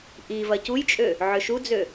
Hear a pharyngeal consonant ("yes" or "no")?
yes